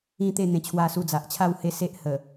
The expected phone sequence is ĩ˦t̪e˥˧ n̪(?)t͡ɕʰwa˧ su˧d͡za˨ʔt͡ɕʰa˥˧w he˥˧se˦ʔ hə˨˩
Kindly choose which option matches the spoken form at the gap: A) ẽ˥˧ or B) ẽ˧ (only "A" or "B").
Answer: B